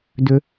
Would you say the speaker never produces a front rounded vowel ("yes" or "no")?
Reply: no